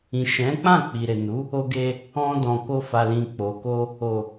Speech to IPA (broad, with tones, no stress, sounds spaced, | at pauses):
ĩ˨ ʃ ɛ̃˨˦ k͡p ã˦˨ k͡p i˨ ɾ e˨ n u˨˦ | o˧ ɡ e˧ | ɔ̃˧ d ɔ̃˨ k o˧ f a˨ l ĩ˨ k͡p o˨ k o˧ | o˨